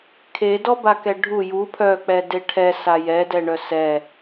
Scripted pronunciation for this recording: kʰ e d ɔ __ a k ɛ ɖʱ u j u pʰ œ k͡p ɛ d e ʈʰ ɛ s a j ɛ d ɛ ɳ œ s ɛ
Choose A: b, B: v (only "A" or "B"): A